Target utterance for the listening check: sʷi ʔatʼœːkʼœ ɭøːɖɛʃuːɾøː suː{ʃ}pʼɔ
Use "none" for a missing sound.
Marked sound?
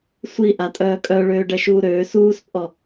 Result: s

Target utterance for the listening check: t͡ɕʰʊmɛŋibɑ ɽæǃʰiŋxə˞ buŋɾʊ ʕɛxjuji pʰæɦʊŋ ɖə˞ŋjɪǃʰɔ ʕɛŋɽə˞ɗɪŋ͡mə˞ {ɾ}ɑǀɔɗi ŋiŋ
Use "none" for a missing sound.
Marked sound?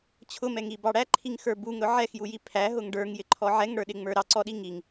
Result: ɾ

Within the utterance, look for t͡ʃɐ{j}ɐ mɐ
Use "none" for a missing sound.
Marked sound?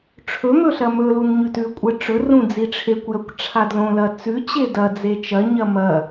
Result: ɲ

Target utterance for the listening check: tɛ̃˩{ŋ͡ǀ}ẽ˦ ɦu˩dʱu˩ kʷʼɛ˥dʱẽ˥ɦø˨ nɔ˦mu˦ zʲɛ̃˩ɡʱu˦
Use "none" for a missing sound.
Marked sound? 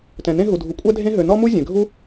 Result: n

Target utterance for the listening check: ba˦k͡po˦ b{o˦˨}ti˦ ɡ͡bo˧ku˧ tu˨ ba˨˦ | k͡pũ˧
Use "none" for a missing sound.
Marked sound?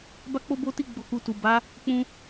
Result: o˦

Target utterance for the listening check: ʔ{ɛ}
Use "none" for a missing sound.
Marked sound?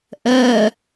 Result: ɛ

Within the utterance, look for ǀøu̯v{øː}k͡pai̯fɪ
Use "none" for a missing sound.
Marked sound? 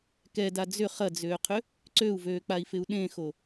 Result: øː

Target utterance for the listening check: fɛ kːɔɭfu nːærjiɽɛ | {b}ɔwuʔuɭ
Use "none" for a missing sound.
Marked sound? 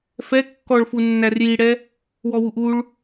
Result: w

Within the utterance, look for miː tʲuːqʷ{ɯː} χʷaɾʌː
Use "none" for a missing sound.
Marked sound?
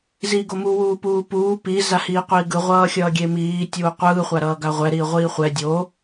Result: ɯː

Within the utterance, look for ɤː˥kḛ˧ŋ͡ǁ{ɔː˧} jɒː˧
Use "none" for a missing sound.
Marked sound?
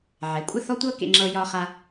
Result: ɤː˧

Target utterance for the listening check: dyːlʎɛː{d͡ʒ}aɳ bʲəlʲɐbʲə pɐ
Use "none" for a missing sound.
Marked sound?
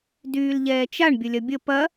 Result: t͡ʃ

